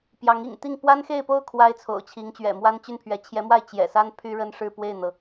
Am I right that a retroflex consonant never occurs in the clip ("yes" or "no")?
no